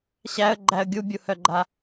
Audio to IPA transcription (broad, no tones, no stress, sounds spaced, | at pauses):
ɕ æ ə̯ ɡ͡ǃ æ ə̯ ɡʲ u bʲ u h œ ɡ͡ǃ a